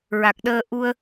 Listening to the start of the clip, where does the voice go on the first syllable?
low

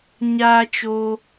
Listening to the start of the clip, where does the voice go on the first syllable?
high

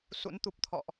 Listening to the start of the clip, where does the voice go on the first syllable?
rising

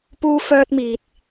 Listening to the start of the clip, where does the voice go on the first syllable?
high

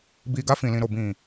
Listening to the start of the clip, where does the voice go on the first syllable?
low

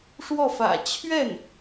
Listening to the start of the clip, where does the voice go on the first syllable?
falling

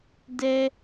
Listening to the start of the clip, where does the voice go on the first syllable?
high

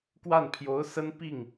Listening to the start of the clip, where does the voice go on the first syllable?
falling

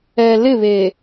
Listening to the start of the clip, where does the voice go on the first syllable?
low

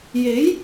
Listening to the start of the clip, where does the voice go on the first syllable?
rising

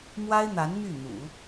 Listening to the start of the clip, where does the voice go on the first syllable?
high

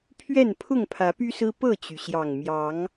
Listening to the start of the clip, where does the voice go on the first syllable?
falling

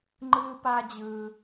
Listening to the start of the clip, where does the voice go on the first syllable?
high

